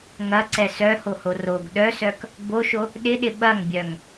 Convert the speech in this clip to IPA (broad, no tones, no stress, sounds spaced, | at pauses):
ŋ ɐ ǀ ɛ s œ h o h o r o ɡ ɗ œ s œ k | b o ʃ o | ɗ ɪ ɗ ɪ ɓ ɐ ŋ bʲ œ ŋ